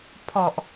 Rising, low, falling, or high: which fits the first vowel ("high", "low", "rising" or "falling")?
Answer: low